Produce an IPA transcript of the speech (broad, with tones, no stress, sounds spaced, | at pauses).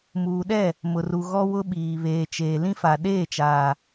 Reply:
m uː˨ ɗ ɛ˦˨ | m ʊ˨ r u˨ ɣ ɔ˦ w ʊ˦ ɓ iː˨ β eː˨ t͡ʃ eː˨ l ĩ˦ f a˨ ɗ eː˦˨ t͡ʃ aː˨